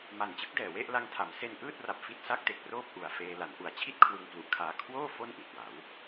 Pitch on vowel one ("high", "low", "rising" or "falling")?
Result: low